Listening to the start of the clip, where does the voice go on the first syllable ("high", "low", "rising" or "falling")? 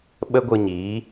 high